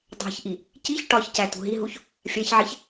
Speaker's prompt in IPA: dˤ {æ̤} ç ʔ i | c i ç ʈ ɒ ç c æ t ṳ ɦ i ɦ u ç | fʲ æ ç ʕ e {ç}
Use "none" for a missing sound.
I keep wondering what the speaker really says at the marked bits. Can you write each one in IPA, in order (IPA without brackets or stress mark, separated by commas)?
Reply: æ̤, ç